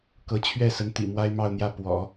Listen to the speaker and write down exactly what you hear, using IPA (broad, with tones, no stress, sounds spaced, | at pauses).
k ɤ˧˥ t͡ɕʰ ɥ ɛ˥˩ s ə˧˥ n t̪ ḭ˨˩ m w a˥ ɪ̯ m ɑ˥˧ ʊ̯ n̪ j ä˥˩ p w ɔ̰˨˩˦